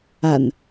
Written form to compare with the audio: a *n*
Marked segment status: correct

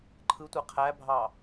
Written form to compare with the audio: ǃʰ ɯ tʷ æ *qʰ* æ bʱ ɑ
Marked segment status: correct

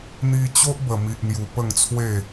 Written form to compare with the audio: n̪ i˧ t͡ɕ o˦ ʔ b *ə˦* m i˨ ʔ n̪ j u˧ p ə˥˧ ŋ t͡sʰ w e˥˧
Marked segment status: incorrect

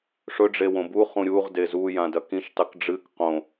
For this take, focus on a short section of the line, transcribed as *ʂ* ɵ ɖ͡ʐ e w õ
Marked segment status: correct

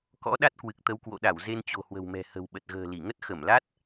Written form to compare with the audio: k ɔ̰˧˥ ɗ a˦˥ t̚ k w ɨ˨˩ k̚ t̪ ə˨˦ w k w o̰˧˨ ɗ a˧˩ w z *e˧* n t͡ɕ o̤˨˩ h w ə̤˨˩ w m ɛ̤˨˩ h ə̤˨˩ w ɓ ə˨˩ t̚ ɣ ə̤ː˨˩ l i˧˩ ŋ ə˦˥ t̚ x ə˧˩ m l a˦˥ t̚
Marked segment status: correct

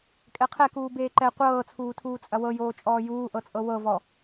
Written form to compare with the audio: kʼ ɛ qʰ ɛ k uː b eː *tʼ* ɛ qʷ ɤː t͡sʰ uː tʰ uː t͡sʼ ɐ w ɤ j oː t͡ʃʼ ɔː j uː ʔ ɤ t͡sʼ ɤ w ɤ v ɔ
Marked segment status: incorrect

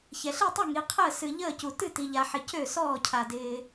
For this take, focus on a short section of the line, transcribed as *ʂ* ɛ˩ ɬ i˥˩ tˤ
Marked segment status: incorrect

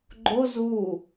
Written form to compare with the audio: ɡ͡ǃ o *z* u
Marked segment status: correct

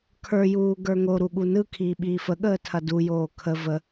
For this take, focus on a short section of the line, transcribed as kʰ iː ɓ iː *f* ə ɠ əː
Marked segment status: correct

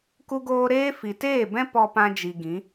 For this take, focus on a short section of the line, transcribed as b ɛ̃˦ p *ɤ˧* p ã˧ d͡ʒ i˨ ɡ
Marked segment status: incorrect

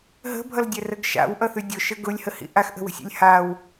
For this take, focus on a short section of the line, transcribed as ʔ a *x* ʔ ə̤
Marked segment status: correct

